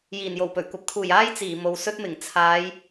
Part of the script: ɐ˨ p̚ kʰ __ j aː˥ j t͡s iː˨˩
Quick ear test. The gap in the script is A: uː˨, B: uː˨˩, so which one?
B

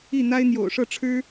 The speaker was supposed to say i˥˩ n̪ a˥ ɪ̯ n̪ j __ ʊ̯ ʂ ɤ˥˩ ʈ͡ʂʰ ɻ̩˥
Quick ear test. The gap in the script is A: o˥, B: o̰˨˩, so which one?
B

